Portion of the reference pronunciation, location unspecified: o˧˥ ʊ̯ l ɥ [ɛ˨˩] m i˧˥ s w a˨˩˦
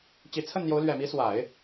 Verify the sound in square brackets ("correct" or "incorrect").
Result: correct